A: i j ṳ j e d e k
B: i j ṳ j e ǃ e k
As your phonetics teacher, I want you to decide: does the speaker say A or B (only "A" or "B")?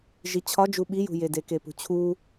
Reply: A